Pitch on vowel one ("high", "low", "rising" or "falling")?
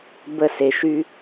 falling